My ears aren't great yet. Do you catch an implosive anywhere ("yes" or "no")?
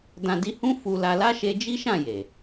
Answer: no